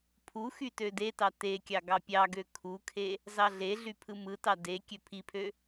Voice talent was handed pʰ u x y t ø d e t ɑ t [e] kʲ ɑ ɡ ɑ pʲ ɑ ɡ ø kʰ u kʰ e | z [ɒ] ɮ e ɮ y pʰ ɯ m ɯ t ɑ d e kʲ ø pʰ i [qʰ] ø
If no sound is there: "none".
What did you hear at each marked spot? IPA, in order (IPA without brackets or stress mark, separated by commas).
e, ɑ, pʰ